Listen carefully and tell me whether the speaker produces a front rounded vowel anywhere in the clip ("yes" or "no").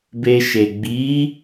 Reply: no